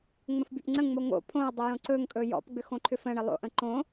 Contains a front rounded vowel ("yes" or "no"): yes